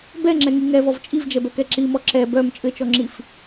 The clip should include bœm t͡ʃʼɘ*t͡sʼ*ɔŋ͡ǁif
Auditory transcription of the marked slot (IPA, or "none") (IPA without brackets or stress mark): t͡ʃ